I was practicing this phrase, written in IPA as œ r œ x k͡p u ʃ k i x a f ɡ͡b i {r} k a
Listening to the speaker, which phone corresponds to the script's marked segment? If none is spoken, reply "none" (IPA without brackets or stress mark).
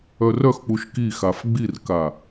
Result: r